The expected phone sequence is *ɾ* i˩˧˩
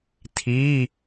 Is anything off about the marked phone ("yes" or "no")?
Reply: yes